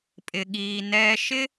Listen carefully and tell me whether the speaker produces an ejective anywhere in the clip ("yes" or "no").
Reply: yes